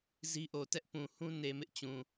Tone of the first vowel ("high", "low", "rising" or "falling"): high